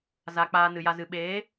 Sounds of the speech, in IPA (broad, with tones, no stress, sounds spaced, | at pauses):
z a˨ k͡p aː˧ n ɨ˨ j a˧ z ɨ˨ ɓ eː˨˦